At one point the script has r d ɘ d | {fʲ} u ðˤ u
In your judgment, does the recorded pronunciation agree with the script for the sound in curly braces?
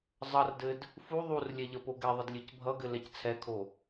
no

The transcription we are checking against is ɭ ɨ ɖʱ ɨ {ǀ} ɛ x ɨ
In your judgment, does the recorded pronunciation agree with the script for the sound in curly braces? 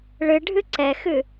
yes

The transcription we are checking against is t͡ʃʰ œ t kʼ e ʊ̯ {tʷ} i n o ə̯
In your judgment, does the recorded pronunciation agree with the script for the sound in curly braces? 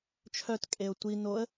yes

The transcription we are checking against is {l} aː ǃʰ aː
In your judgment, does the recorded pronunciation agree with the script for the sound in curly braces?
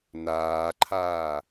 no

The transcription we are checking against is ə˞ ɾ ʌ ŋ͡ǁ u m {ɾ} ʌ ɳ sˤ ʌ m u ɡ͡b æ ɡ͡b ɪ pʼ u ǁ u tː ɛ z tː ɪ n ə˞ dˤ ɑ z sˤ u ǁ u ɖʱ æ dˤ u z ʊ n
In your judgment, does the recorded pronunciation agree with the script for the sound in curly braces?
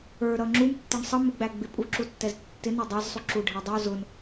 no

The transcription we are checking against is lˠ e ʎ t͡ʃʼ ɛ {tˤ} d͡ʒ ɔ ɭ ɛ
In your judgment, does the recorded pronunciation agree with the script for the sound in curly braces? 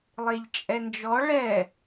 no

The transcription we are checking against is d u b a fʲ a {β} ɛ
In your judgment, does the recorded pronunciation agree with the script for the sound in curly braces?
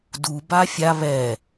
yes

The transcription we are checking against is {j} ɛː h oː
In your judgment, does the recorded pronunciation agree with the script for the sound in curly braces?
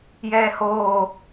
yes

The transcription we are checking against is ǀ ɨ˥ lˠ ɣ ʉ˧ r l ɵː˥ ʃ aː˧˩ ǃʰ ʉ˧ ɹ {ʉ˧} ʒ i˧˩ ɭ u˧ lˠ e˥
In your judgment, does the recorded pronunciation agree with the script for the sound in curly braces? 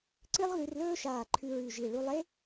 no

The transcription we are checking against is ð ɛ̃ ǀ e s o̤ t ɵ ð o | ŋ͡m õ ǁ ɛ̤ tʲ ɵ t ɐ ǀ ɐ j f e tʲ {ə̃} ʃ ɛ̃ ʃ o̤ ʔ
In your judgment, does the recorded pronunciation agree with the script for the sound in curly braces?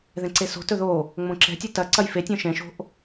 no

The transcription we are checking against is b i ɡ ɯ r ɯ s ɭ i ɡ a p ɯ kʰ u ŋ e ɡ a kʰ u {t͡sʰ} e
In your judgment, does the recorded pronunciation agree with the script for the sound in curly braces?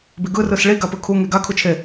no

